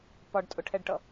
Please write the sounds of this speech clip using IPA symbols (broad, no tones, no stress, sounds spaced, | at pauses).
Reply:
p ɒ ɖ tʼ ʊ ʈʰ ɛ ɖ ʈ ʌ